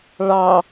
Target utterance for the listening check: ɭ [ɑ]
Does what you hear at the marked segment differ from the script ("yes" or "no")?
no